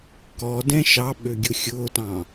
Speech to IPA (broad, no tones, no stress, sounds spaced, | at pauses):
k ɔ d ɛ̃ ʃ ɑ ɓ ø ɡʲ ʊ xʲ ʊː t ɑ̃